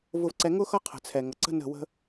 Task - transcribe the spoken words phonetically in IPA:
v ʊ˧ v ǀ ɛ˧ ŋ ʊ˥ x ʌ˥ qʰ ə̤˩ t͡sʰ ɛ˩ ŋ ʌ˩ ǀ ə̤˥ n ə̤˥˩ w ə̤˥

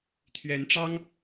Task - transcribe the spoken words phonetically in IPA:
t̪ʰ ɥ ɛ˨˦ n ʈ͡ʂ ɑ˦ ŋ

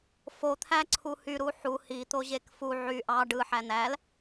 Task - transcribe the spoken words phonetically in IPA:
f o t̪ʰ æ ǀʰ u h y ɾ u ħ u h i t̪ o ʑ e k f u ʕ y ʔ ɑ ɖ ɯ ħ æ n̪ æ l

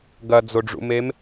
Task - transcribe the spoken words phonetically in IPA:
ɡ ɐ d͡z o ɖ͡ʐ ṵ m e m

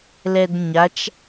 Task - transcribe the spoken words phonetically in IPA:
l ɛ d ɲ a t͡ʃ

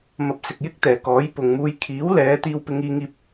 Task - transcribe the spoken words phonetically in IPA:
m ɐ˨ p̚ s ɪ˨ k̚ j ɪ˥ k̚ t̪ ɛː˨˩ k ɔː˨˥ j p ʊ˨ ŋ m uː˧ j kʰ iː˨˥ w l ɛː˨˧ t̪ iː˧ w p ɪ˧ ŋ iː˧ ŋ iː˨ p̚

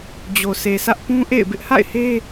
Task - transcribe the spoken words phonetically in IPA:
d͡ʑ o˨ sʰ e˨ sʰ ä˦ ʔ p ũ˦ ʔ ḛ˦˨ ɪ̯ b ɪ˦ ʔ h a̰˦˨ ɪ̯ h e˦

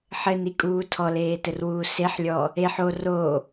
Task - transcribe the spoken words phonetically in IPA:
ħ ɘ n i kʼ uː tʰ ɔ l eː t ɘ r w uː s e ħ lʲ ɔː | e ħ o r oː

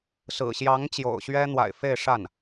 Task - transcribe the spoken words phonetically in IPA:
s ɹ̩˨˩ ɕ j ɑ˧˥ ŋ t͡ɕ j o̰˨˩ ʊ̯ ɕ ɥ ɛ˥ n̪ w a̰˨˩ ɪ̯ f e˥˧ ɪ̯ ʂ a˥˩ n

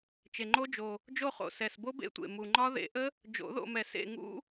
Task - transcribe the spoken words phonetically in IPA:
t͡ʃ e˨˩ ŋ͡ǃ o˦˥ d͡ʒ o˨˩ | d͡ʒ o˦˨ χ o̰˨˩ s ɛ˨˩ s b o˦˥ b ḛ˦˥ tʷ ḛ˨˩ m u˨˩ ŋ͡ǃ ɒ˦˥ ð ḛ˨˩˦ ʔ ə˦˥ | d͡ʒ o̰˨˩˦ ð o̰˦˨ m ɛ˨˩˦ s ḛ˦˨ ŋ ṵ˦˥

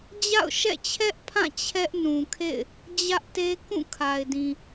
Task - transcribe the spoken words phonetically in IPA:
d͡ʑ a̰˦˨ ʊ̯ ʃ ɛ̰˦˨ t͡ɕʰ ɛ˦ ʔ pʰ ã˦˨ t͡ɕʰ ɛ˦ ʔ n ũ˨ kʰ ḛ˦˨ ɪ̯ | d͡ʑ ä˦ ʔ t e˦ k ũ˦˨ kʰ a˨ ɪ̯ d ĩ˨

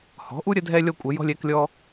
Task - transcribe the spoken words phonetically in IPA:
h ɔ̤˩˥ ʔ u˥ ɾʲ ə˥ dʱ ɛ˥ lʲ ɔ˥ kʷʼ ə˩˥ j ɔ̤˥ lʲ ɛ˩˥ k lʲ ɔ˥

